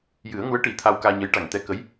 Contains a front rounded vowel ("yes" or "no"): no